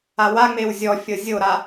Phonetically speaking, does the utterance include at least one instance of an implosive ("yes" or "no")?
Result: no